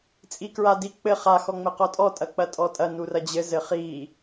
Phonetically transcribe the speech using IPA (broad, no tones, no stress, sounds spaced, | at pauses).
t͡sʼ i k ɹ a d i k͡p ɘ χ a x ɔ ŋ͡m ɘ q ɔ tʼ ɔ tʼ ɐ k͡p ɐ tʼ ɔ tʼ ɐ n u r ɐ d͡ʑ ɘ z ɘ χ i